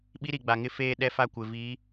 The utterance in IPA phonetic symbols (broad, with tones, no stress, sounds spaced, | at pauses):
ɓ i˦ ɾ i˨ ɡ͡b a˨ ŋ ɪ˦ f eː˦ ɗ ɛ˦ f a˦˨ kʷ ɪ˨ v iː˨˦